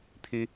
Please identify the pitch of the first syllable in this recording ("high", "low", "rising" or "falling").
high